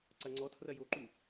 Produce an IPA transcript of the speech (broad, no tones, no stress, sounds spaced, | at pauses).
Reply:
ǀ ɐ ŋ͡ǀ ɔ tʰ r ɐ j o ǃ u